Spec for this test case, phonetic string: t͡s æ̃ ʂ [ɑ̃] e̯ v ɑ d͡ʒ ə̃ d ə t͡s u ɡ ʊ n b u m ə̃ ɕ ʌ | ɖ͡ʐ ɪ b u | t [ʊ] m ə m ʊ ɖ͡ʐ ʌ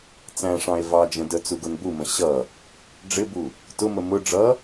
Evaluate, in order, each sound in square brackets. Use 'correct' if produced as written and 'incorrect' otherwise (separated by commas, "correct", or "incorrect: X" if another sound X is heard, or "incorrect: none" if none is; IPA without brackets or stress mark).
correct, correct